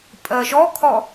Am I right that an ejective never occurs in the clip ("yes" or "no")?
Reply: no